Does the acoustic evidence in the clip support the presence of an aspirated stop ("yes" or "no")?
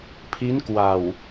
yes